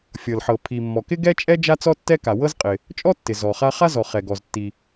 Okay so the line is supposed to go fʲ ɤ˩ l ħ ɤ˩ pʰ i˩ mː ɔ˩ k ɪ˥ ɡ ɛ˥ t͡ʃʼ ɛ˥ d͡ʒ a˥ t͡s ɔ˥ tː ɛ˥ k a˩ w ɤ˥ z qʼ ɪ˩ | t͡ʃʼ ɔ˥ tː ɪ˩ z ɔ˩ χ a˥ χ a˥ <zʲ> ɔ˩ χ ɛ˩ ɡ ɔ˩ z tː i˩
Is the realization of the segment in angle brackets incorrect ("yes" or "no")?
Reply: yes